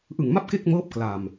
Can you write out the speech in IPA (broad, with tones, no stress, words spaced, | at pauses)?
ʔɯ˨˩ŋma˥˩p̚ ke˥˩k̚mɤː˦˥p̚ kla˨˩m